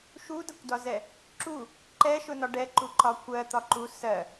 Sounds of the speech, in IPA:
ʃ u d ʌ kʷ d ɒ z ɛ | ǁ u | ǃ ɛ ʃ ʊ n ɒ ɖ ɛ ǃ u ǃ ɒ kʷ ɜ t̪ ɒ ǃ u s ɜ

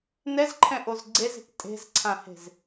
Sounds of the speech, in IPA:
n ɛ z ǃʰ ɛ̃ ʔ o z ɡ͡ǀ e z e̤ k tʼ e̤ z ǀʰ ã h e̤ z

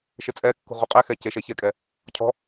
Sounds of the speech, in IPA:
ʃ ɪ t͡sʼ ɛ kː ṳ ʁ u qʼ ɛ x ɛ c e ʃ ɛ ç ɛ kʼ ɛ | cʰ ɔ̤

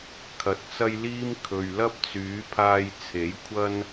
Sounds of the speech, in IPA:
kʰ ɐ˨˥ t̚ t͡s ɐ˥ j l iː˥ m kʰ ɵ˨ ɥ l ɐ˥ p̚ t͡s yː˨˥ pʰ aː˧ j t͡sʰ e˨˥ j kʷʰ ɐ˥ n

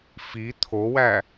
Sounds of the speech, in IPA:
f i t̪ʰ o w æ

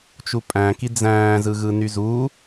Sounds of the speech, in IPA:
t͡ʃ u pʼ æ̃ k i d͡z æ̃ː z ɯ ɣ ɯ n y z u

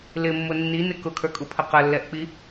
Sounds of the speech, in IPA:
l ɪ mː ʊ nː i n ɪ k ʊ kʰ ə˞ kʼ u pʰ ə q ə lː ɛ ʔ k͡p i

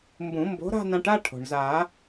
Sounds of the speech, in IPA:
m b ũ˨˩˦ m b o̤˨˥ ɾ a̤˥˧ n ã˧ ʈ a˥˧ ʈʰ o̤˩ ɳ z a˨˩˦

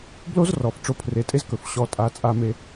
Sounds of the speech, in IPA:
b l o˦ z r ɔ˨ f ʈ͡ʂ o˧ pʰ r e˨˦ tʼ e˦ z k ɵ˨ f ɕ ɔ˧ tʼ a˧ t͡sʼ a˧ m e˧

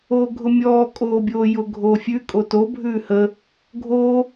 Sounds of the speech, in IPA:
oː ɡʱ ʊ mʲ ɔː kʼ oː bʲ oː j ʊ ɡʱ oː fʲ ʉ kʼ o t o bʱ ʉː h ə | ɡʱ oː

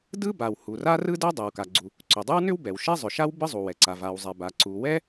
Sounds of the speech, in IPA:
d ɯ˥ b a˩ w h u˩ r a˥ r ɯ˥ d ɛ˥ dˤ ɛ˩ w k a˩ ɡ͡ǀ u˩ | ǀ ʏ˩ dˤ ɯ˥ w n ʏ˥ w b ɛ˩ w ʃ ɛ˥ zˤ ʏ˩ ʃ a˥ w b ɯ˥ zˤ u˩ w ɛ˩ ǀ a˩ v a˩ w zˤ ɛ˩ b a˩ ǀ u˩ w ɛ˥

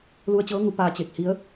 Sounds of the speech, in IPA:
l u˧ ə̯ t͡ɕ ɤː˧˥ ŋ u˩˧ p aː˧ t͡ɕ e˧˩ k̚ h i˧˥ ə̯

